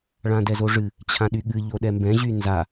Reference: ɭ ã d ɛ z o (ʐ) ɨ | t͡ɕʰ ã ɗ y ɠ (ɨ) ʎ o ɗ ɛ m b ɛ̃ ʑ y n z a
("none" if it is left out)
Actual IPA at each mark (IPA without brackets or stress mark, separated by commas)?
ʐ, ɨ